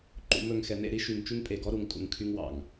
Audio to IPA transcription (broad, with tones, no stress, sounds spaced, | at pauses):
ǃ ṵ˨ m ɵ˨ ŋ x ɛ˨ n ḛ˦˨ ɾ i˦ ʃ y˨ ŋ t͡ʃ y˦ ŋ pʼ e˨ ɡ ɔ˦ ɾ u˨ ŋ tʼ ṵ˨ ŋ kʰ y˦ ŋ w ɑ̰˨ ŋ